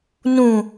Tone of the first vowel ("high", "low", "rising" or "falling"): low